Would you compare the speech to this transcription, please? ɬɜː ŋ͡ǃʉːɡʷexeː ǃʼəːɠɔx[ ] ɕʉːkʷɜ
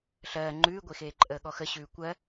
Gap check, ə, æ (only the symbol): ə